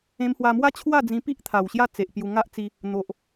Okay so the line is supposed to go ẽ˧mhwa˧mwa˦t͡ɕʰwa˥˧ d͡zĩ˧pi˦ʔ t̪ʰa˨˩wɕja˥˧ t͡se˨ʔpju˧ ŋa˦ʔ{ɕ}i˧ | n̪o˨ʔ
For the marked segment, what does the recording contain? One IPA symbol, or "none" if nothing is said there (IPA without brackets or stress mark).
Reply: t͡s